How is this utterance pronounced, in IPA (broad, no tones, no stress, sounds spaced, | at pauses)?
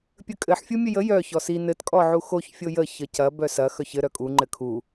pʲ ə kʼ ɘ ħ fʲ u mʲ ɘ j ə j œ ç ɔ s i n ɘ t kʼ ɔ ʕ u x o ç fʲ o j ə ç ə c ɐ b œ s ɐ x œ ç ɘ ɾ œ kʼ u ŋ͡ǃ ɘ kʰ u